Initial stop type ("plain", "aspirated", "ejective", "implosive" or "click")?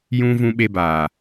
implosive